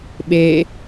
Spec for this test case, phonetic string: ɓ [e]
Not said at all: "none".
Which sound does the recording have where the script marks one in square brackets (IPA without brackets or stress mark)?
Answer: e